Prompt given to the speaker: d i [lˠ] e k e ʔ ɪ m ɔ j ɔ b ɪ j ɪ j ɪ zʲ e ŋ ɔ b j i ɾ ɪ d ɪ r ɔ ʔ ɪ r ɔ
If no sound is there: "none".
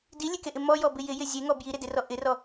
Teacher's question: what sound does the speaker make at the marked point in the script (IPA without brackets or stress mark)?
lʲ